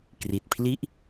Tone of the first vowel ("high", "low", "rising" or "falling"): low